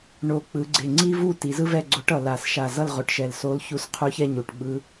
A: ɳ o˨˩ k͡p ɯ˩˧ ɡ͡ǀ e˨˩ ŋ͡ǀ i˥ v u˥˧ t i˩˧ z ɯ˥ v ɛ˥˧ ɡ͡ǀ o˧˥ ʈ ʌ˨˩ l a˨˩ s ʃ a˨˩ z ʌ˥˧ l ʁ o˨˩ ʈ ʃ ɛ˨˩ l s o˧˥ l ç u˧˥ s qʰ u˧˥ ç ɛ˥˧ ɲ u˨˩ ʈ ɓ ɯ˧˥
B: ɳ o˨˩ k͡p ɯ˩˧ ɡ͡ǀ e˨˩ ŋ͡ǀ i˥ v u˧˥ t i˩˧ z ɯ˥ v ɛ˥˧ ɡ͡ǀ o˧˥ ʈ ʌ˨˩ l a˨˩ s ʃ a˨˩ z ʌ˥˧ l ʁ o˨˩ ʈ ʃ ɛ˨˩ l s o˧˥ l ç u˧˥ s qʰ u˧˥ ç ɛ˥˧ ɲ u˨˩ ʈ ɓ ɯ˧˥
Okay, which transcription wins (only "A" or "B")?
A